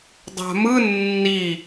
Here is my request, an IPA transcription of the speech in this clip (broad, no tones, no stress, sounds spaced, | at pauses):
dˤ a̤ m ɯ nː i